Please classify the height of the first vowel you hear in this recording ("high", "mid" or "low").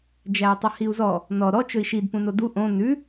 low